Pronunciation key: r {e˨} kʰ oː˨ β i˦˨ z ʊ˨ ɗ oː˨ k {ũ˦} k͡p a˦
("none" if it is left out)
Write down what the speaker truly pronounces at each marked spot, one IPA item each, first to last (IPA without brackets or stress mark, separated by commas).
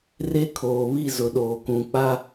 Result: e˦, ũ˨